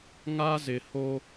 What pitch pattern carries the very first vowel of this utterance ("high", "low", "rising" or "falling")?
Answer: high